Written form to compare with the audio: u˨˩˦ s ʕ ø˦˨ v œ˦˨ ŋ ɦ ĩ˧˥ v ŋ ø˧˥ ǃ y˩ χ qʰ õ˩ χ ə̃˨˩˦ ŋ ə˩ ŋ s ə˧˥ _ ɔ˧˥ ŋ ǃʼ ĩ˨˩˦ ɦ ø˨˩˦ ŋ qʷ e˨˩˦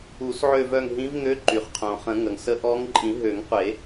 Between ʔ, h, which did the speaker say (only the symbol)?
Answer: ʔ